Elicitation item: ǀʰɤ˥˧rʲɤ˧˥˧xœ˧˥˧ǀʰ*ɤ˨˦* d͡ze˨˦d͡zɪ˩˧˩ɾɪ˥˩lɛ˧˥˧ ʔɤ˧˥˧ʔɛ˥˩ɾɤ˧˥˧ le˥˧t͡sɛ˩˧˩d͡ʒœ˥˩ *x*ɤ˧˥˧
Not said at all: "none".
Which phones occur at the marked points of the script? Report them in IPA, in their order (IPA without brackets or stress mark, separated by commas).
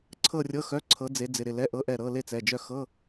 ɤ˨˦, x